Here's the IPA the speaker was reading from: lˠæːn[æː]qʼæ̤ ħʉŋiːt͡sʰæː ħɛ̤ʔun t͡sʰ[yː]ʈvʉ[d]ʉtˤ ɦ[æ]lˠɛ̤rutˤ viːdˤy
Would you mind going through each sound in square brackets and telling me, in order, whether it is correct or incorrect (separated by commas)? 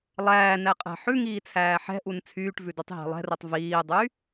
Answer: incorrect, correct, correct, incorrect